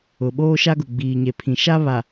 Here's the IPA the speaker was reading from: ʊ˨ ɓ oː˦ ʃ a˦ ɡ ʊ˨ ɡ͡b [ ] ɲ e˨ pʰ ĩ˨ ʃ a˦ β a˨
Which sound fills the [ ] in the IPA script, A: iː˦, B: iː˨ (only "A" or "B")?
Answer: B